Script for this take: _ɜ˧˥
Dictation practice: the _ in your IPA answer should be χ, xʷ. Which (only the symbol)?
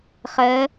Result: χ